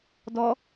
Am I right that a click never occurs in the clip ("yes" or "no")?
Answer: yes